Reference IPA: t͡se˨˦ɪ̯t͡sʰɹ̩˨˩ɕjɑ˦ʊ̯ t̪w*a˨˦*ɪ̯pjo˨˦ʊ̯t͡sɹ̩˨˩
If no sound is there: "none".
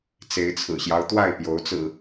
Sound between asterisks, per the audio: a˥˨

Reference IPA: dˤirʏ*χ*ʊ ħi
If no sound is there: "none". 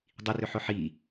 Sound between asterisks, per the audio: ħ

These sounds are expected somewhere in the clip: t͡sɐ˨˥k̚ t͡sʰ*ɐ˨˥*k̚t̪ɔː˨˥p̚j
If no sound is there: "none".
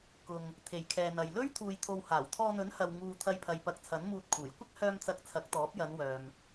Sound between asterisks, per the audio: ɐ˨˥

